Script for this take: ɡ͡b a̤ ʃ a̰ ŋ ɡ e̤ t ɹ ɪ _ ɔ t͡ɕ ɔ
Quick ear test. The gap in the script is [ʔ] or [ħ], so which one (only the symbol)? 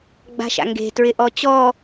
ʔ